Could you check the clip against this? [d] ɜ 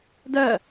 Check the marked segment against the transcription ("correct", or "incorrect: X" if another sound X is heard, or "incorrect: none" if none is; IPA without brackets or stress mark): correct